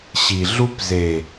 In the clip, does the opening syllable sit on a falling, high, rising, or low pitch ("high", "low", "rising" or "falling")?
low